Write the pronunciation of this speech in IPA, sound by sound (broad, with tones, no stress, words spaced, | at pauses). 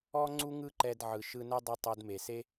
ɔ˥ŋ͡ǀu˥ŋɯ˥ǃɛ˧d ʕɯ˩ʃɯ˧ nɛ˥dˤu˧ tˤo˧dme˩se˥